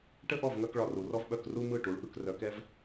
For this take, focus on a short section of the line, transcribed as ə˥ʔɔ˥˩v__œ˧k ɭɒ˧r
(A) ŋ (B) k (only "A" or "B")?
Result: A